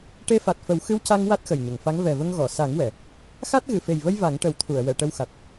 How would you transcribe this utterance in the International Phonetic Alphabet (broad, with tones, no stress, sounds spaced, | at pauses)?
ʈ e˧ f a˨˩ t̚ f ə˨˩˦ w x ɨ˧˥ w c a˧ ŋ w a˦˥ t̚ x ə˨˩ j ɲ ə˨˩˨ ŋ f a˧˥ ŋ v ɛ˨˩ v ə˧ ŋ ɣ ɔ˨˩˨ s a˨˩˦ ŋ w ɛ˨˩˨ | x a˦˥ t̚ ɣ ɨ˨˩˨ f e˨˩ j v ə˧ j v a˨˩˦ ŋ ʈ ə˨˩˦ w t̪ʰ u˨˩˨ ə̯ w ɛ˨˩˨ ʈ ə˧ w x a˨˩ t̚